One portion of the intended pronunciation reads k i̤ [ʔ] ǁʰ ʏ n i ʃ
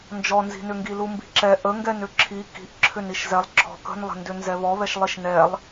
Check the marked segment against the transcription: correct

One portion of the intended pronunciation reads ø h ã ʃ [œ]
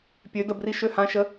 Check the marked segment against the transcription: incorrect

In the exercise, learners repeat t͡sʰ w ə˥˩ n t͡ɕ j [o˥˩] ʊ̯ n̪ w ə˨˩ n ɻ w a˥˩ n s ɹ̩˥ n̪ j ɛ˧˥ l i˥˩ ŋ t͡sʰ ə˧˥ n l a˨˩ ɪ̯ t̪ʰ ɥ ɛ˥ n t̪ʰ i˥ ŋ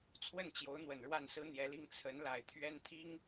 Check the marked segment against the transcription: incorrect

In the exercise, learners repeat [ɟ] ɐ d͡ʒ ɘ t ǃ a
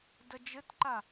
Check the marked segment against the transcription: incorrect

